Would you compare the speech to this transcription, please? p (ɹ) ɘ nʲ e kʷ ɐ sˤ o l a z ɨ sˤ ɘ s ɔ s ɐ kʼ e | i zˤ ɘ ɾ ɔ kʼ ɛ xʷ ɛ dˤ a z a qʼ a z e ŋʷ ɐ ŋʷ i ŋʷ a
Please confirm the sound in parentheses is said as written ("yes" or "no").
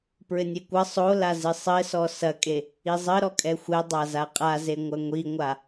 yes